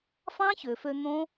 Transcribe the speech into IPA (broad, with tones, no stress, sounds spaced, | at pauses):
f ɑ̃˦ ç ø˨ f ø˧ n̪ õ˦